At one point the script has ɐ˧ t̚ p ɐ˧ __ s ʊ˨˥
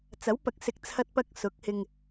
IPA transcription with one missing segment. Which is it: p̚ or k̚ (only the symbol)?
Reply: k̚